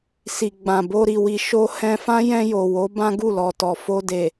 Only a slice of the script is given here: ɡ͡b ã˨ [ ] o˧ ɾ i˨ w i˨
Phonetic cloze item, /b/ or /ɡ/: b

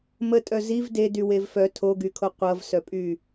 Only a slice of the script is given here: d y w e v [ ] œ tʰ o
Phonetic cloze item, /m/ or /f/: f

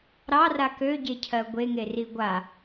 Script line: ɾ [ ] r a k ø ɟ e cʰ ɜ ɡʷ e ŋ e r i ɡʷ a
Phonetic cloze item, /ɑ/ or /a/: ɑ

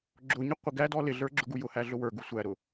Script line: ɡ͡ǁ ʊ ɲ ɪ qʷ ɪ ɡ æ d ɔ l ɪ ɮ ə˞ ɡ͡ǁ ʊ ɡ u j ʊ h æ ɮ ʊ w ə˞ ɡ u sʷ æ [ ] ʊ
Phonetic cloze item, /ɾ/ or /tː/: ɾ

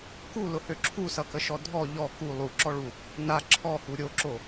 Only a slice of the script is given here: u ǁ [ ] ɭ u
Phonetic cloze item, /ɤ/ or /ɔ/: ɔ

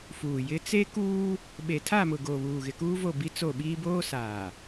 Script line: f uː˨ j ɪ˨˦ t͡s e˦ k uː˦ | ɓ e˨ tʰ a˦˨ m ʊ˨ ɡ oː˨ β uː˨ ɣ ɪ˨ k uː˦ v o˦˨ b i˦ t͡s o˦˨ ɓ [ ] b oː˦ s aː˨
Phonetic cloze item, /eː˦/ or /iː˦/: iː˦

